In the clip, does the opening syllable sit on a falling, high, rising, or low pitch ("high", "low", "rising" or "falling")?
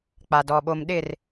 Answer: low